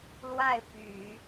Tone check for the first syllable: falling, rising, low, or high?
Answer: falling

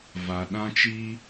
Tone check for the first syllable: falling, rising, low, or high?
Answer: low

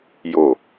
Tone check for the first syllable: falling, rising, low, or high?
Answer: low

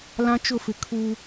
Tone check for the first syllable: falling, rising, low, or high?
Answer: high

